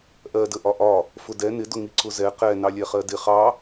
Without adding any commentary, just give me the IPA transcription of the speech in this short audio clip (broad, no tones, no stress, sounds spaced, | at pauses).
ʔ ɜ d ə ʔ ɒ ʔ ɒ | f ʊ d ɛ n ɪ d ʊ ŋ i ǀ ʊ z ɛ q ɛ n ɑ lʲ ɛ χ ɜ d ɪ χ ɑ